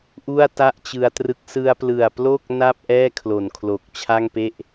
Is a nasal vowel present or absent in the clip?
absent